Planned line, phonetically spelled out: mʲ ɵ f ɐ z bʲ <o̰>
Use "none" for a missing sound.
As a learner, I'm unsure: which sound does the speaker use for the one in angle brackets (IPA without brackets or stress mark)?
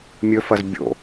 o̰